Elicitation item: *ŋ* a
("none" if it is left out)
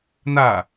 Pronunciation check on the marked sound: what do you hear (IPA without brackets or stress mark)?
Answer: n